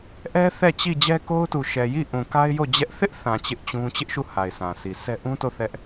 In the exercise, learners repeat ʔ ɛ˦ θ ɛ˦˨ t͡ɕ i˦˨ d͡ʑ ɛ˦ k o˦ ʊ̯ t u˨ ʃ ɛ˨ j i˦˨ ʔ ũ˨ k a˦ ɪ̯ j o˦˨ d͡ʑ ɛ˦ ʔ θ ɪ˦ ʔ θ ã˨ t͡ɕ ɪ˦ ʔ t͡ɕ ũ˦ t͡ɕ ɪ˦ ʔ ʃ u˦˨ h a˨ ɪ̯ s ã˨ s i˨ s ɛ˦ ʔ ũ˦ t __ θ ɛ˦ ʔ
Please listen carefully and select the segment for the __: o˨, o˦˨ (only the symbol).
o˦˨